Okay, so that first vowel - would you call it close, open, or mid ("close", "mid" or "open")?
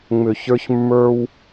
close